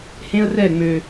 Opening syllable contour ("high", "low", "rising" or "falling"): high